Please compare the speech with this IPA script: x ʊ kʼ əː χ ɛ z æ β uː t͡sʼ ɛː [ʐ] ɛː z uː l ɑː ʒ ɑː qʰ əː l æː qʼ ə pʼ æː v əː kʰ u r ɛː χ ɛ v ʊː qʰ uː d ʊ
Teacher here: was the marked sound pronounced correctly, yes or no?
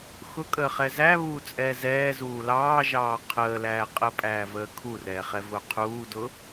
no